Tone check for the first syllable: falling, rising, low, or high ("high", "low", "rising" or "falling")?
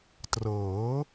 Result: rising